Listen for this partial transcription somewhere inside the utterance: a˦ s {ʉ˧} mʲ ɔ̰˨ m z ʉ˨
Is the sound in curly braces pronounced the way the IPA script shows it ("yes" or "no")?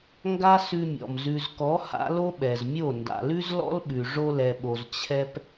yes